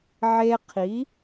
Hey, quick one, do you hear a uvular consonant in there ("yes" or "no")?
yes